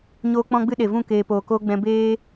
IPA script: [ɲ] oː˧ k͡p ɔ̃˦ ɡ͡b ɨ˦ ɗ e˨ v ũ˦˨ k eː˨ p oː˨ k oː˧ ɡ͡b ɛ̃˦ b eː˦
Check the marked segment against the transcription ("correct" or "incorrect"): correct